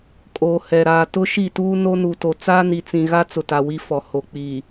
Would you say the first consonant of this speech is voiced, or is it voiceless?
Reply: voiceless